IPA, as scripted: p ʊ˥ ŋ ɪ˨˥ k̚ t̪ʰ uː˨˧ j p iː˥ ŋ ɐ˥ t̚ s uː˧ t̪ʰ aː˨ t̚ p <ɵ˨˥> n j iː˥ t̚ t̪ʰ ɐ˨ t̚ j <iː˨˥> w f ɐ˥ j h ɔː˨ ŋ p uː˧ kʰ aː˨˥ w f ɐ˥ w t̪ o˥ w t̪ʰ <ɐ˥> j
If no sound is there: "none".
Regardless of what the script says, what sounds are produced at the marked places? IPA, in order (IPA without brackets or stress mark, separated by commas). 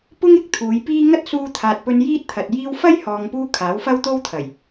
ɵ˧, iː˧, ɐ˨˩